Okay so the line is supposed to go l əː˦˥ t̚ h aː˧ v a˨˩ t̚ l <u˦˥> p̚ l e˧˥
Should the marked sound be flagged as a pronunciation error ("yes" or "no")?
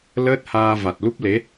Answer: no